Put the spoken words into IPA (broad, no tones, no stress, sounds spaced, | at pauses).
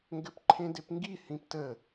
ŋ ɡ ɘ p ǃʰ ẽ d e p ŋ ɡ i h ĩ p t ə